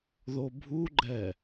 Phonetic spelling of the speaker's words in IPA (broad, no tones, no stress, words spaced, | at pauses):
ðobʱuɡ͡ǃɛ